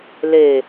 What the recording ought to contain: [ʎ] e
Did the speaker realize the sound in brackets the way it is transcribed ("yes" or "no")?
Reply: no